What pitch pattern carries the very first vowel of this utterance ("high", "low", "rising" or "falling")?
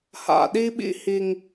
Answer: low